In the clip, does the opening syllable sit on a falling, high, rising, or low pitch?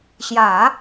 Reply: low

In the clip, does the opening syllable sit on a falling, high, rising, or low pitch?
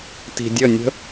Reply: low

